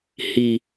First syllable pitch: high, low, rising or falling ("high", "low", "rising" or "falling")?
low